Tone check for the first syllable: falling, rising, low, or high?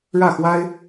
falling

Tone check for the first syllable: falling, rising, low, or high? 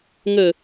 falling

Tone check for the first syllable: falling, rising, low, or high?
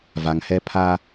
low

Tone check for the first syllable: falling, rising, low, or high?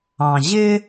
low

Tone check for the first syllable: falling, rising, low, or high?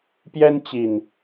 high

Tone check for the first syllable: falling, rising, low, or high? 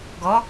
rising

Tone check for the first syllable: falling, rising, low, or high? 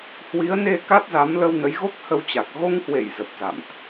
rising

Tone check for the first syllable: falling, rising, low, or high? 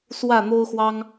falling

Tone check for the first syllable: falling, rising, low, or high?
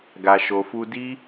low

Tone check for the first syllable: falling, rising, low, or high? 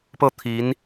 falling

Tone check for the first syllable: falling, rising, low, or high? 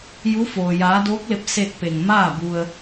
rising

